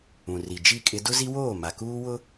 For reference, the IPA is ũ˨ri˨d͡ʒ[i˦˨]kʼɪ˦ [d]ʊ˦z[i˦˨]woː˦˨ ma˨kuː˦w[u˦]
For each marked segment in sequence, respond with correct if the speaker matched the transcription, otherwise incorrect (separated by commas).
correct, correct, incorrect, incorrect